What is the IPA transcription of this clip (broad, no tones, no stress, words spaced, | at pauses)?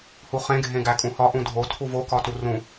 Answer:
huχẽ ɡʱẽɡækʼũhɒ ʔũdʱo tʰuvo kɒturũ